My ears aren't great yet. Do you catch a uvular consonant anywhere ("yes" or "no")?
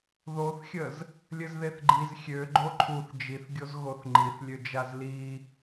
no